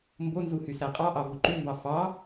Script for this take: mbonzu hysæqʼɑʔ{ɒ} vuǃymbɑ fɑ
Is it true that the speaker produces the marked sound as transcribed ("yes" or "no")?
no